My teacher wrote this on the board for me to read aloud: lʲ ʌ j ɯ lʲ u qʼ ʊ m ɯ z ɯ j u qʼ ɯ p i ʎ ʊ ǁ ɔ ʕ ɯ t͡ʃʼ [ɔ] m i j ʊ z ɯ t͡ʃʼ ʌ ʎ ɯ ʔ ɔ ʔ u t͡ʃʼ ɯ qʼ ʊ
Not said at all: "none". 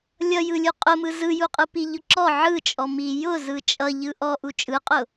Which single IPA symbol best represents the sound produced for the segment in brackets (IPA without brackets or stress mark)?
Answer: ɔ